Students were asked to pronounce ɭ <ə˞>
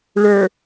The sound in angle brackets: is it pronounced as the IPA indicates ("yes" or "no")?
yes